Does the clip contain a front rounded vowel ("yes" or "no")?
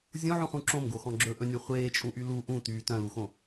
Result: yes